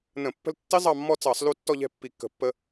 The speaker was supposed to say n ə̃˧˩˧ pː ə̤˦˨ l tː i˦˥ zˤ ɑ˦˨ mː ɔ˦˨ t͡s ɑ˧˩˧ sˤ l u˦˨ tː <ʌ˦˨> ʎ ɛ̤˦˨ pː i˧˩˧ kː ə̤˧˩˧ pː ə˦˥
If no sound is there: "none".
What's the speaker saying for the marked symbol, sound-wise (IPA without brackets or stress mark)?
ɔ˦˨